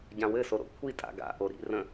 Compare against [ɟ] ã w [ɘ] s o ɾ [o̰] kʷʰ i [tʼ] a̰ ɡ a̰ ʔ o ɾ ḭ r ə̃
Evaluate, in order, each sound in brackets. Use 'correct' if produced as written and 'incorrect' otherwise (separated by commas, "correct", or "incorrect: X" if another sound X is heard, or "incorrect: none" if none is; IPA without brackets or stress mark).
correct, correct, correct, correct